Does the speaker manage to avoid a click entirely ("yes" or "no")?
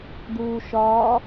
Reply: yes